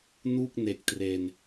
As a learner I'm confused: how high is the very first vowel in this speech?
high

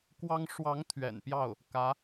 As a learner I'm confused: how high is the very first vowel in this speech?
low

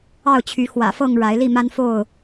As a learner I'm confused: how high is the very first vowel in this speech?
low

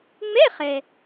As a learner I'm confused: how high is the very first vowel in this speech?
mid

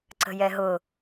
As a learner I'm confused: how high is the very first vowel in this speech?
mid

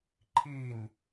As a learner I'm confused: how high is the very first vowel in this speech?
high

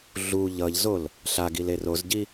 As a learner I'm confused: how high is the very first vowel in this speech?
high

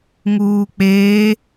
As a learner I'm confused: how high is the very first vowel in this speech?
high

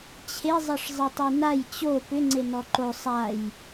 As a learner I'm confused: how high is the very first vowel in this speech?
mid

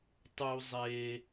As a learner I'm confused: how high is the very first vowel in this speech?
high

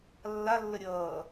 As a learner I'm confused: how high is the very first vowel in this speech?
low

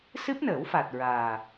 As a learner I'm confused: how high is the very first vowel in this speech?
high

